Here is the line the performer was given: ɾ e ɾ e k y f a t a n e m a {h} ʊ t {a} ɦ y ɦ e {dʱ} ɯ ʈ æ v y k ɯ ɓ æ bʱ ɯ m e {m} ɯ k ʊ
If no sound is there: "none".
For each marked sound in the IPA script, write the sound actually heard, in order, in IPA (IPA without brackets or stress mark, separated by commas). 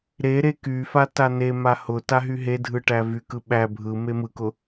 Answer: h, a, dʱ, m